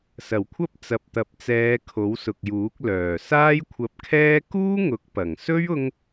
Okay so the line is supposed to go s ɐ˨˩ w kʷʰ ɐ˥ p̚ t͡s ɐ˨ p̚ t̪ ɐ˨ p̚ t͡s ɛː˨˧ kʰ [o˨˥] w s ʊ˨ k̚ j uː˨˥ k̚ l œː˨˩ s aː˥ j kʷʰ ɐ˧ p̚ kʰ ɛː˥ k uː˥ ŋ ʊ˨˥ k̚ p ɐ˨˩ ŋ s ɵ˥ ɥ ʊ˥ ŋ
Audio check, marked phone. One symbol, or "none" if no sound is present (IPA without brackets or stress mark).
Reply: o˨˥